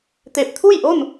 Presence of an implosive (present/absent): absent